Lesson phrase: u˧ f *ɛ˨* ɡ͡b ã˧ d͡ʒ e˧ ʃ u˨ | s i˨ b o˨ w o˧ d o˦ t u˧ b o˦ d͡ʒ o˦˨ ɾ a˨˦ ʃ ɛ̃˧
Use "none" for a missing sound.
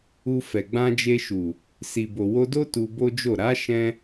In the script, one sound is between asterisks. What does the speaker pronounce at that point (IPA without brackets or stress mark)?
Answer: ɛ˨